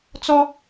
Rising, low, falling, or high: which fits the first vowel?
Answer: high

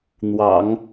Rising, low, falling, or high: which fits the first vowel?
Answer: low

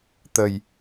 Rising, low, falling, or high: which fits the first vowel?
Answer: low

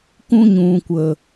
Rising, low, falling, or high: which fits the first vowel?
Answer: high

